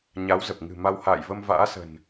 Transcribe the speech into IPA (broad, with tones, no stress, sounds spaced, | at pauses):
ɲ a˨˦ w z ə˨˩ p̚ ŋ ɨ̤˨˩ m a˧ w h a̰ː˧˨ j v ə˧ m v a̰ː˧˥ s ə̤˨˩ n